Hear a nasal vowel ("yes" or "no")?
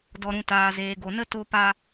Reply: yes